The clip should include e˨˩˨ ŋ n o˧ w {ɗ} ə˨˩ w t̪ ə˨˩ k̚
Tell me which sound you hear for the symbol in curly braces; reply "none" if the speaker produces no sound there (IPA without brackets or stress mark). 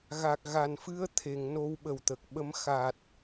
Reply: ɓ